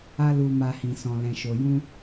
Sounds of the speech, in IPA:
a˦lu˧ma˧ hĩ˨sɔ̃˨ lɛ̃˨ʃo˨jũ˧

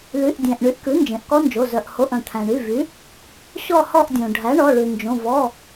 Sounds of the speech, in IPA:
ly˩˧˩ʔdʲæ̃˩ʔ ɳy˩˥ʔkʉ˩˥nd͡ʒẽ˩ʔ kɔ˦˥nd͡ʒo˩˧˩ zœ˩ʔho˩˧˩ʔ œ̃˩t̪ʰæ̃˩ɳy˩˧˩vy˩˥ | ɕɔ˦˨hɔ˦˨ʔdʲõ˩ ɖʱæ˩˥ɳɔ˩˧˩ɭʉ˩nd͡ʒõ˩˧˩ vɔ˩˧˩

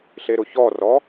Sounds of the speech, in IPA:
ɬeɾʊçɔrɔ

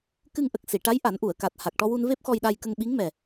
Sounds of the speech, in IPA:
kɨ˧ŋʔə˨˩k̚si˨˩˨ʈa˧˥j ʔa˨˩˦nʔu˨˩˨ə̯ka˨˩t̚ ha˨˩k̚ʈɔ˧wu˧nve˦˥p̚ xɔ˧jɗa˧jkə˧ŋ ɓi˧˥ŋmɛ˨˩

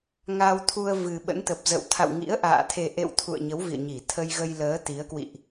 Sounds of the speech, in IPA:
ŋa˧wt̪ʰu˧ə̯vɨ˨˩ ɓə̰˧˥nt̪ə˨˩p̚zə̰˧˨w t̪ʰa̰˧˨w ŋḭ˧˥ə̯ʔa̰ː˧˨ t̪ʰe˨˩ʔḛ˧˨w t̪ʰṵ˧˨ə̯ɲə˨˦w vḭ˧˨ə̯ɲi˧˩ t̪ʰə˧jɣə˧jləː˨˦ t̪i˨˦ə̯ kwḭ˧˨ʔ

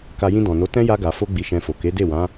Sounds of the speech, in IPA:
ka˧ jĩ˧dɔ̃˨no˨˦tɛ̃˦ ja˧ɡa˨fo˧ ɡ͡bi˧ʃɛ̃˧fo˨ ke˨˦de˦˨wã˨˦

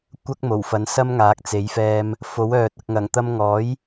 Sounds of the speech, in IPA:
kʷɐ˥k̚mo˨˩wfɐ˨˥n sɐ˥mŋaː˨˥k̚t͡se˨˥jfɛː˧m | fo˨˥wœː˨t̚ ɐ˨k̚ŋɐ˨˩ŋt̪ɐ˧mŋɔː˨˥j

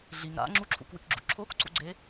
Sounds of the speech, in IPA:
ɮiŋ ɾa̰ ŋ͡ǁuǁʰṵkwɨkɡ͡ǁṵ ǁʰokǀṵɡ͡ǀe

